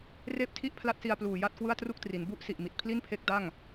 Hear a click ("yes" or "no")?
no